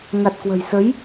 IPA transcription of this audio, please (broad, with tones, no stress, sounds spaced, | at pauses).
ŋ a˨˩ t̚ k w ə̤˨˩ j s ə˨˦ j